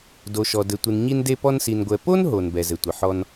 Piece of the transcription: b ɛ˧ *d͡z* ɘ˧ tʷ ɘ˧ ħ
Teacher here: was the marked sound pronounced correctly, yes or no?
no